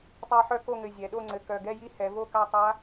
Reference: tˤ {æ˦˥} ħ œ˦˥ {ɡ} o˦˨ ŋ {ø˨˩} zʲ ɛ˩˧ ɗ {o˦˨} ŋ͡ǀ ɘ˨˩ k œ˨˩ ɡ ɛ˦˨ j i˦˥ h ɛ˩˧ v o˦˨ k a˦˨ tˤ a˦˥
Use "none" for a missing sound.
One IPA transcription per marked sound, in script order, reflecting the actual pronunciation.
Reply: æ˦˥, k, ɘ˨˩, o˦˨

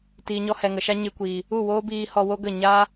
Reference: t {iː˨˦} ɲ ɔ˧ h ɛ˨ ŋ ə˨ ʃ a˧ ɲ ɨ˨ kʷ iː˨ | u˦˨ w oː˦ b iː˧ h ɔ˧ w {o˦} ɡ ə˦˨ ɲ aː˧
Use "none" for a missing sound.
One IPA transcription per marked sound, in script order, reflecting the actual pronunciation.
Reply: iː˨, o˦

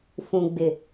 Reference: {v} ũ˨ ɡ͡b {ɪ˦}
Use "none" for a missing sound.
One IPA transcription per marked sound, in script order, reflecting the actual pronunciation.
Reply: f, ɪ˨

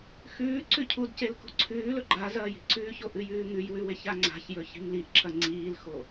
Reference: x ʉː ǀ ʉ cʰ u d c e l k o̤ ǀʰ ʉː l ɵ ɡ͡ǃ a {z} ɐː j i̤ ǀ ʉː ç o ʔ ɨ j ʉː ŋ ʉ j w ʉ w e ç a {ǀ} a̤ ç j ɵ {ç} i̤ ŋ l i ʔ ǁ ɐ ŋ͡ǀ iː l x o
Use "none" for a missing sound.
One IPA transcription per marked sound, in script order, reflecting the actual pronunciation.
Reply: z, ŋ͡ǀ, ç

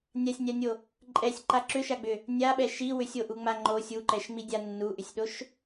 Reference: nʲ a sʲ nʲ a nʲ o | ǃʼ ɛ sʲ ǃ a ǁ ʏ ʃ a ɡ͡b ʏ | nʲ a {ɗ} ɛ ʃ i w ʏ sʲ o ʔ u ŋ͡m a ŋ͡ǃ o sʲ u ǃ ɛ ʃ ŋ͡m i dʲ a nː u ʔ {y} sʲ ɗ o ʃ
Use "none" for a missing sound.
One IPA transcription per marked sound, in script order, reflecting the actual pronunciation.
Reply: ɓ, ʏ

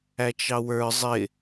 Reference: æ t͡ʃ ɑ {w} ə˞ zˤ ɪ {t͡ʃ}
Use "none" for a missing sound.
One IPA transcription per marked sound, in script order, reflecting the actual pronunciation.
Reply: w, none

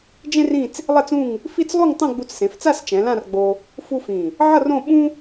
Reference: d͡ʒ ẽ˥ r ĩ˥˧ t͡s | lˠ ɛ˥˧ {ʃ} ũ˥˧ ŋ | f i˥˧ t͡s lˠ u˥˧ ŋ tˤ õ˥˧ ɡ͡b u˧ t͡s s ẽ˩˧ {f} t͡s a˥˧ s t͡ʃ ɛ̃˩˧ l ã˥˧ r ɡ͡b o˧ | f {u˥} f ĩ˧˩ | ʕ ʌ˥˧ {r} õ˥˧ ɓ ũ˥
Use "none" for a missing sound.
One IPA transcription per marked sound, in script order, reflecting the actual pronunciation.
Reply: t͡s, f, u˥, r

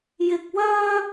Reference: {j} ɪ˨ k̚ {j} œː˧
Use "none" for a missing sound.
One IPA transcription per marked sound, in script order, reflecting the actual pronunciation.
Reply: j, w

